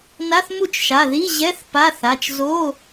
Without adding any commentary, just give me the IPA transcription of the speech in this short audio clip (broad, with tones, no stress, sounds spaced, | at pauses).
n a˧˥˧ θ m u˥˩ t͡ʃ ʃ a˩˧˩ ð i˧˥˧ ʑ ɛ˧˥˧ θ p a˧˥˧ θ a˩˧˩ t͡ʃ z o˧˥˧